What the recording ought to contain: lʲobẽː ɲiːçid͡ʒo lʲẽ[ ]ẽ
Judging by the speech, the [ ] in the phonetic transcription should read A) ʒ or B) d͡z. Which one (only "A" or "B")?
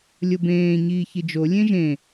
A